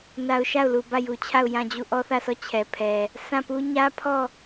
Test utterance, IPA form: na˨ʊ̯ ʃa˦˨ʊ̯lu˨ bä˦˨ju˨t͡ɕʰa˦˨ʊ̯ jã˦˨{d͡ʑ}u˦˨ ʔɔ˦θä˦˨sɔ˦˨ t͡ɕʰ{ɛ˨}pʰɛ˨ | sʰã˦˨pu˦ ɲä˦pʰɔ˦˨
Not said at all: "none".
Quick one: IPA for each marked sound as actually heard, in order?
d͡ʑ, ɛ˨

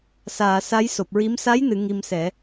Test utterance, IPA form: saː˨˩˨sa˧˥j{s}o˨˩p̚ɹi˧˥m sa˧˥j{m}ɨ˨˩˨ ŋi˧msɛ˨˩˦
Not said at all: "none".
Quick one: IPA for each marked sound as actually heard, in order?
s, n

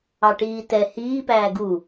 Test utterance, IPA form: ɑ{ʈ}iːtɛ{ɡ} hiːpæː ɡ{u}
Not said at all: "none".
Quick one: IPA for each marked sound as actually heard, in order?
ʈ, none, u

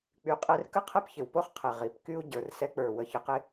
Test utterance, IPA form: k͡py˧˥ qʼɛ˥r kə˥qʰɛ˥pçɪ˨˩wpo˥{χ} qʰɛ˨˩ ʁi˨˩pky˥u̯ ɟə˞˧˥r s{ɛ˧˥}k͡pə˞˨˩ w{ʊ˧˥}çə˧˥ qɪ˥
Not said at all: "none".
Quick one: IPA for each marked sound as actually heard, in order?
χ, ɛ˧˥, ə˧˥

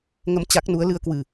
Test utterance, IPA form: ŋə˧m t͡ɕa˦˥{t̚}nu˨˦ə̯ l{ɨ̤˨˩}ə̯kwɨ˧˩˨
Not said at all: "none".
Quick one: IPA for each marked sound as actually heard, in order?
k̚, ɨ˧

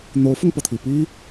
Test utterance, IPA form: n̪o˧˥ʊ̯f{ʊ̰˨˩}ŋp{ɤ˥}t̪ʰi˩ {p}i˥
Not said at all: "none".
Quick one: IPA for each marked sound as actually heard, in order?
ʊ˧, ɤ˩, p

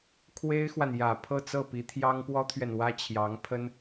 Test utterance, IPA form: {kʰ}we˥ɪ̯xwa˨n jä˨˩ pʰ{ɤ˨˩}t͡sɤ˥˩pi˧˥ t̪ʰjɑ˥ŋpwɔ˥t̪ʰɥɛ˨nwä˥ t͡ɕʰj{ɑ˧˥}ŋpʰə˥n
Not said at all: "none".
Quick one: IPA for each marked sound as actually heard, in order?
kʰ, ɤ˥˧, ɑ˧˥

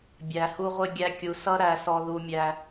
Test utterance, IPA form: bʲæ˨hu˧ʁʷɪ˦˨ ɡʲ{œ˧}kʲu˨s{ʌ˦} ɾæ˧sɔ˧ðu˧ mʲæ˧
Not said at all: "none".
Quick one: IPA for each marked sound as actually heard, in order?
æ˧, ʌ˦

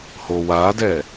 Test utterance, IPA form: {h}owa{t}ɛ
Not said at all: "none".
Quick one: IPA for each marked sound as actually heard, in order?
h, d

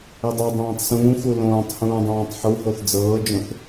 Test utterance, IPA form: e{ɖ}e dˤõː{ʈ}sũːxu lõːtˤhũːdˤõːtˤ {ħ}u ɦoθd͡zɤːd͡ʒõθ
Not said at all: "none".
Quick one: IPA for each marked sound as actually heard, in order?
dˤ, tˤ, ħ

